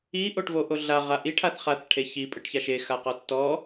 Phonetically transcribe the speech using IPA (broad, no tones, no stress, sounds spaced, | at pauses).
i ʔ o ʈ v o ʔ o ɮ a ʁ a ʔ i ʈʰ a θ χ a θ ʈʰ e ç i pʼ ɯ ʈ ç a ʃ e x a q ɔ tː ɔ